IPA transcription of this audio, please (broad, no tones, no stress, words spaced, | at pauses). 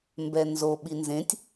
mbɛnzo ɓinzẽtʲ